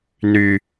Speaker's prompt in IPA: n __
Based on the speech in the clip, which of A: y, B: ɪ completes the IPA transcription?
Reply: A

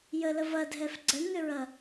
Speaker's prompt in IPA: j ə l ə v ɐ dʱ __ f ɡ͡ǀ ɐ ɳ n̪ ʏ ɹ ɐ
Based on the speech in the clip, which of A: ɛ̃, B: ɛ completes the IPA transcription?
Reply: B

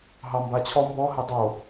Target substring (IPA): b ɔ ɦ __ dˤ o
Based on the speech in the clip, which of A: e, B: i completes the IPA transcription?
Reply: A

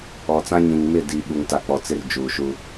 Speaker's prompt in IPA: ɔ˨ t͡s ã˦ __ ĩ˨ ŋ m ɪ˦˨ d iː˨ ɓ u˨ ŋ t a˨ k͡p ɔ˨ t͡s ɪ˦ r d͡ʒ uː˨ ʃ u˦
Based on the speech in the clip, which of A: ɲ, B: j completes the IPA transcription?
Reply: A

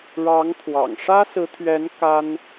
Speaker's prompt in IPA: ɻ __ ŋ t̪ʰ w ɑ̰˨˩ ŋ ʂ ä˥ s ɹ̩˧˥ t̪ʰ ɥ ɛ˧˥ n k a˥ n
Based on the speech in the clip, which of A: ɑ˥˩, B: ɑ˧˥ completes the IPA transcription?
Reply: B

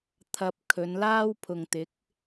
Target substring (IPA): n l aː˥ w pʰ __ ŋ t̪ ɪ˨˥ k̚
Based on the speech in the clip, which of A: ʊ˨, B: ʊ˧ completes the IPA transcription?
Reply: A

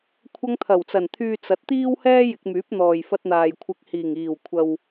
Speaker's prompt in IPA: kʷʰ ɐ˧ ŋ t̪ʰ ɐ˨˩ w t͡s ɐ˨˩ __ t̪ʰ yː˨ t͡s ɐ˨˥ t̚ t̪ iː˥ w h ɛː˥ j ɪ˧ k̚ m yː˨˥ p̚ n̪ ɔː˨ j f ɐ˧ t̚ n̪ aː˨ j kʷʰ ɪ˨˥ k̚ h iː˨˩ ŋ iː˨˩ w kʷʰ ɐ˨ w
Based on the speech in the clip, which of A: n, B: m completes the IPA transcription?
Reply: A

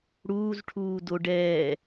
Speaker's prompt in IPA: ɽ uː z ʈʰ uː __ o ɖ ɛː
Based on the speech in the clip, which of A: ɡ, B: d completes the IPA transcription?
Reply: B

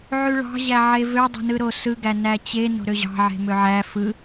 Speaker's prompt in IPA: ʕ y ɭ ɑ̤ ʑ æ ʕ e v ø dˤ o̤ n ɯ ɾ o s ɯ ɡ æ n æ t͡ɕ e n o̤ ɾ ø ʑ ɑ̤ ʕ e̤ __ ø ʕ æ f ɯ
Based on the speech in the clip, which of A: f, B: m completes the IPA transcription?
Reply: B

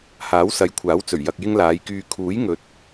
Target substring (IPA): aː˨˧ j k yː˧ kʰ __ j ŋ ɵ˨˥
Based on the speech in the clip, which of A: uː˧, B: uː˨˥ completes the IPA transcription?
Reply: B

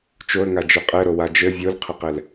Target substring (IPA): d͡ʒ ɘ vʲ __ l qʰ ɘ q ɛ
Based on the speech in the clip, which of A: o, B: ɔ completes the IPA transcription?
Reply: A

